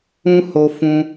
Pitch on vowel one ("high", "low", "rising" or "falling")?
high